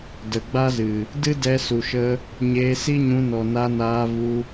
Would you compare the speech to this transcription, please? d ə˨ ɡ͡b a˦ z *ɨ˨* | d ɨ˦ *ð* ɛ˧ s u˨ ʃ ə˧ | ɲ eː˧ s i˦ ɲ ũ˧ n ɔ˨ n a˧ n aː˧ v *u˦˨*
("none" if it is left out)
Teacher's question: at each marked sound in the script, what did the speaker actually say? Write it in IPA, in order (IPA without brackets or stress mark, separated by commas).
ɨ˨, d, u˧